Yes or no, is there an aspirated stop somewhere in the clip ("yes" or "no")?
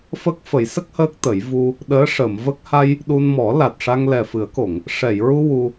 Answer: no